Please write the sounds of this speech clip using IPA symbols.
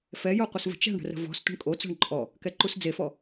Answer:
fɛjoqʷəsvə̤ t͡ʃɛ̤ɳɽə̤rə̤ vɔ̤s tʷə̤ɳkʼot͡sɔ̤ɳ ǃʼɔ | kɛǃusd͡zefɔ

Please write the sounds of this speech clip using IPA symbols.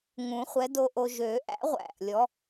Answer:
ŋũ˨˩˦χʷɛ˨˥do˧ʔo˧ ʒø˨˩˦ʔæ̰˨˥ʁʷæ̰˨˩ʔ lʲɔ˨˥

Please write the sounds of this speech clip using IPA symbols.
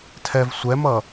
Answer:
tʰɛv sʷɛmʌ

